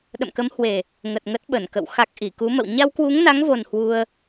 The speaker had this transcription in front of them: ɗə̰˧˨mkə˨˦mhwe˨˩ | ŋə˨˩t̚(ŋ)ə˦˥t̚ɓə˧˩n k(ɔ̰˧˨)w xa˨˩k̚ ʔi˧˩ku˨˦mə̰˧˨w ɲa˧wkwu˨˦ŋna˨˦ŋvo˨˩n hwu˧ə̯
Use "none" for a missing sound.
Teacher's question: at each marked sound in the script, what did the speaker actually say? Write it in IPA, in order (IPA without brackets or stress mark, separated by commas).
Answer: ŋ, ə̰˧˨